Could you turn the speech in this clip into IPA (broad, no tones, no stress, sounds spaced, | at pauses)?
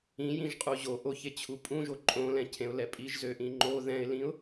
ĩ j ĩ ʒ qʼ u ʑ o ʔ o ç e t͡ɕʰ u pʼ ũ ʒ o ǃʼ õ l ɛ̃ cʰ ẽ ʊ̯ l ɛ pʼ i ʒ z ø ʔ ĩ ŋ͡ǃ o ð ɛ̃ ɪ̯ l ĩ ʊ̯